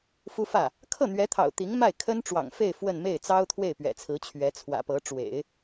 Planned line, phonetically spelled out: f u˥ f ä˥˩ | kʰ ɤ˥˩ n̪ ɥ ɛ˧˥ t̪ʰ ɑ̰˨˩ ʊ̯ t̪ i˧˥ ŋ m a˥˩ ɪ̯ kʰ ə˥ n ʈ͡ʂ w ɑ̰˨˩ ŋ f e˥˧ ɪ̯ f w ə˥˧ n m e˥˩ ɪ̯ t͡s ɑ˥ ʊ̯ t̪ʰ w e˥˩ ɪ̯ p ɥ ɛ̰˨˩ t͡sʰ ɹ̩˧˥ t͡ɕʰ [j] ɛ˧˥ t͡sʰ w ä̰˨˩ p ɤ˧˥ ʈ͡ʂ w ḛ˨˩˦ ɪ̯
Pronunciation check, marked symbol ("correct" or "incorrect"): incorrect